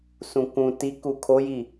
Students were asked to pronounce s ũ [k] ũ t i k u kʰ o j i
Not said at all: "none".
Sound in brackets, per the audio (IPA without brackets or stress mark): k